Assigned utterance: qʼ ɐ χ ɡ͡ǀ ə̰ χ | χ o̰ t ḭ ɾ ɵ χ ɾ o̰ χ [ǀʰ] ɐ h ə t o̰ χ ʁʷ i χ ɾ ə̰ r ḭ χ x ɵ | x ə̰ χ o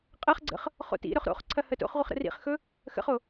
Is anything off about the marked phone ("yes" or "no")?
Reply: no